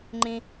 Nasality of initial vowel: nasal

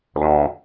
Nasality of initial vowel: nasal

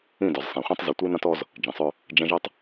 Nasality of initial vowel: nasal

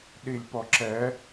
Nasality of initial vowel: oral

